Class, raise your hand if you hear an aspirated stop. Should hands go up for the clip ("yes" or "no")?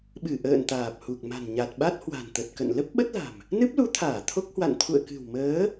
yes